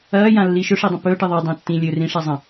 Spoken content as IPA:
ɐː j ã lː i ʃ ɵ ʂ i dˤ ɐ̃ p ɵː ʈ ɨ ðˤ ɨ dˤ ã tː ĩ lʲ ɵ r ĩ ʂ a zˤ ɐ̃

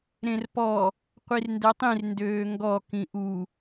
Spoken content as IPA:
ɾ ẽ r p ɔ | qʷ i r n d ɛ tˤ ĩ r n d øː ŋ ɡ ɔ k ĩ ʔ u

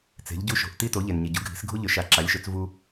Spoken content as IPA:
t͡s e̤˩˧ ʎ ɟ u˧ ʃ o̤˩ ʔ t i˧ t o˩˧ ʎ e˩ n ɲ i˩ ɟ u˩˧ ɡʱ i̤˩˧ s ɡʱ u˧ ʎ ø˩˧ ʃ a˩˧ ǁ a˩˧ lʲ ʃ ø˩˧ t͡s v u˧

